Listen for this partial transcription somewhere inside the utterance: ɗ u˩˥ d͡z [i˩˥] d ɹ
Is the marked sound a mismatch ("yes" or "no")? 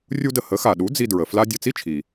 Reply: yes